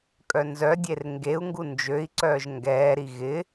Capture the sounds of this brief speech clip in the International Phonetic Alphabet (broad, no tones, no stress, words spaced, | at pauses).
kʼœnzœdʲer ŋɡeu̯ŋɡu nd͡ʒøi̯ǀœːʒ ŋɡɛːɾi ɣɪ